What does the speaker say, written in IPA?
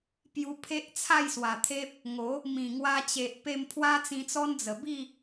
p j u˧ pʰ e˦ ʔ t͡sʰ a˥˧ j s w a˨˩ t̪ʰ e˦ p̚ | ŋ o˨˦ | m ĩ˨˩ ŋ w a˧ t͡ɕ e˨ ʔ p e˧ m pʰ w a˦ t͡s ĩ˧ t͡s ɔ˦ n d͡z ə˨˩ b i˥˧

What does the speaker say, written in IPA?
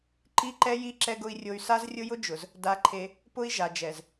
ǃ i˦ ǃ ɛ˦ j i˦ ǁ ɛ˦ ɡ ʊ˦ i̯ rʲ o˦ y̯ s a˦ z rʲ ʊ˦ j ʊ˦ d͡ʒ ʊ˨ z | d a˦ ǃʰ e˦ | p ʊ˦ i̯ ʒ a˨ d͡ʒ ɛ˨ z

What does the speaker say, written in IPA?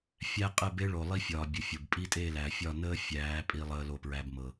fʲ æ˦ qʼ ə˦˨ b e˦ ɭ o˨ lˠ i˦ fʲ ɒː˨ bʲ ʊ˨ fʲ o˨ b pʼ i˦ tʼ e˦˨ l æ˨ fʲ ɒ˦˨ n əː˦ fʲ æː˨˦ pʼ i˦ lˠ əː˦ l o˦˨ p ɹ æ˦ b m ɤ˨

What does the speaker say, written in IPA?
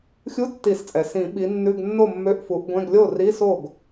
xʲ u˧˥˧ tː i˨˩˦ s t͡sʼ ɛ˩ s ĩ˨˩˦ ɓ i˨˦ nː ʉ˧˥˧ ɡ nː o˥˨ mː ø˧˥˧ ʔ f u˨˦ ʔ ɡʷ ɛ̃˧˥˧ ɡ lʲ o˥˨ r i˧˥˧ s o˥˨ ɡ

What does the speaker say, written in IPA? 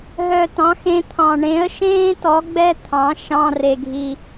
ɦ œ˧ t ɑ̃˨˥ x ẽ˥ t̪ʰ ɑ̃˧ ɳ ẽ˨˥ ə̯ ʃ ẽː˥ t ɔ˨˥ ɡ͡b ɛ˥ t̪ʰ ɑ̃˨˥ ʃ ɑ̃˧˥˧ r e˧ ɡʱ i˧

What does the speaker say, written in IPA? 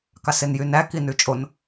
k ɑ s e n j y n æ k i n ʉ t͡ʃʼ o n

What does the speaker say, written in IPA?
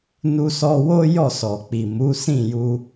n u˧ s ɔ˧ w o˦ j ɔ˦˨ s ɔ˨ k͡p i˨ m u˨˦ s ĩ˦˨ j u˧

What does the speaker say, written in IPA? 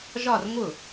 ʒ ɒ˥˧ r ŋ ʊ˥˩

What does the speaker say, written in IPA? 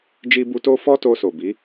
d͡ʒ i˧ b u˧ t o˧ f ɔ˦ t o˧ s o˨ b i˨˦

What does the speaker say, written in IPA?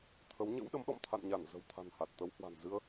t̪ʰ ə˨˦ w ɲ ə̰˧˥ w ɗ ə˨˦ m ɗ ɔ̰˧˨ m t̪ʰ a̰˧˨ n ɲ a˧˩ n z ə̤˨˩ w t̪ʰ a̤˨˩ n h a˨˩ t̚ t̪ ə˨˦ w h w a̤˨˩ n z ɨ˧ ə̯

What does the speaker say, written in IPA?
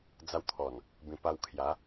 d͡z a˧ w t̪ʰ ɔ˨˩ n | b ĩ˧ p a˧ w kʰ j a˨˦

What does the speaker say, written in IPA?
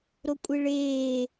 ɾ o kʷʼ e ɭ eː

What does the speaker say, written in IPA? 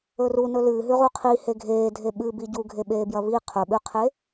ɵ r u n ɵ l ɨː ɦ ʉ ʁ u qʰ i h e ɡʱ eː dʱ e ɓ ɨ b i ɟ u ɡʱ e ɓ eː b j ɐ β i qʰ ɵ ɓ ʉ qʰ e

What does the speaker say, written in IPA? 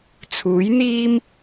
t͡sʰ uː˨˥ j n̪ iː˥ m

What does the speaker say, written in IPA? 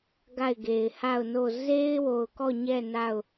ɡ a˦˨ ɪ̯ ɡ e˨ ɪ̯ h a˦˨ ʊ̯ n o˦˨ z e˦ ɪ̯ w o˨ ʊ̯ k ɔ˦˨ ɲ ɛ˦˨ n a˦˨ ʊ̯

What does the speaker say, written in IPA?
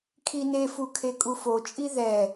kʰ i n e f u kʰ e kʼ u f o t͡ʃʼ i ð ɛ

